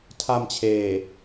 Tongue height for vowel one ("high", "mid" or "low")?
low